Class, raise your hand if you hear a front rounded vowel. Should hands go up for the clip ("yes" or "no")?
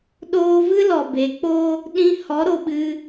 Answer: no